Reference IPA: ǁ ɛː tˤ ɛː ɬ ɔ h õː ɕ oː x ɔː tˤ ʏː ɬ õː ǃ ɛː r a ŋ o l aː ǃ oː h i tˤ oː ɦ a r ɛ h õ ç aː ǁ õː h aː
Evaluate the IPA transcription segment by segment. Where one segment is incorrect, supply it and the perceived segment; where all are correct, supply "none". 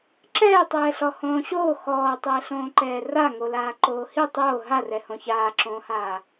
ʏː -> ɛː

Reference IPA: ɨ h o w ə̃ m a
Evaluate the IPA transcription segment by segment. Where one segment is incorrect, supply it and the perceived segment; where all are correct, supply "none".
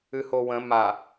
none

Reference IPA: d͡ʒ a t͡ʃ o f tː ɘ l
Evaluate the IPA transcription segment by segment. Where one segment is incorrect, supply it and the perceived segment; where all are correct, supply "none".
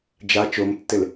f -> m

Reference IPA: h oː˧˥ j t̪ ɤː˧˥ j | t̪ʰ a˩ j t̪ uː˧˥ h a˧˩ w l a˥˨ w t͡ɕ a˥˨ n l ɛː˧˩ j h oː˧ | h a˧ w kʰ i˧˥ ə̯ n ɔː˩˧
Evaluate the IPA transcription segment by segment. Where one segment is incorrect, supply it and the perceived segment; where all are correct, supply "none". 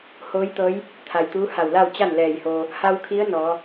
none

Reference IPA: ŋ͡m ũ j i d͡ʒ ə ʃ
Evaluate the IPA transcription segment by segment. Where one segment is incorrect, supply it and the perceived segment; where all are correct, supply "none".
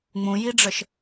d͡ʒ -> ɖ͡ʐ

